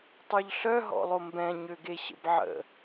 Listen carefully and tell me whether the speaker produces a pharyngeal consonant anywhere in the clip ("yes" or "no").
yes